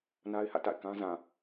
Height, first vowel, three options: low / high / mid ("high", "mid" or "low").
low